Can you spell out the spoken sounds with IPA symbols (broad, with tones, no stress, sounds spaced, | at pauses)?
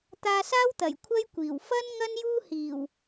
t̪ aː˧ s aː˥ w t̪ ɐ˨˩ j kʷʰ ɐ˥ j kʷ iː˨˩ w f ɐ˥ n ŋ ɐ˥ n j uː˥ h iː˨˩ w